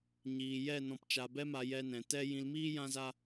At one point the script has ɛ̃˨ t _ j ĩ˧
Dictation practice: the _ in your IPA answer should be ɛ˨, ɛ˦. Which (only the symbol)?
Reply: ɛ˦